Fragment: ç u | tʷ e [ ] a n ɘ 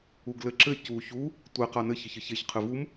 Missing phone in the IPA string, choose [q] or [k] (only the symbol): q